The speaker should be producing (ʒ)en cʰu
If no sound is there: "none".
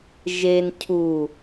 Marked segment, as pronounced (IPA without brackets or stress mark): ʒ